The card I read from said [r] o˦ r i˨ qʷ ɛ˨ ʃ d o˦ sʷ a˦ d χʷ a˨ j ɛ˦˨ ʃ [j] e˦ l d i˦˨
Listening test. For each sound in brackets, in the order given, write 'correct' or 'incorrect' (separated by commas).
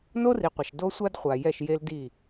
incorrect, correct